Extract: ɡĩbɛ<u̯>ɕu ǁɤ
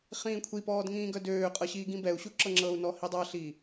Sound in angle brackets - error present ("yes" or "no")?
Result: no